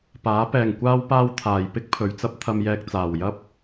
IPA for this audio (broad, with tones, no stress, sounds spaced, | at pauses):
p aː˨˥ p ɛː˨ ŋ kʷ aː˥ w p aː˥ w t̪ʰ aː˨ j p ɪ˥ k̚ pʰ ɵ˨ ɥ t͡s ɐ˥ p̚ t̪ʰ ɐ˧ m j ɛː˧ k̚ t͡s aː˨ w j ɐ˥ p̚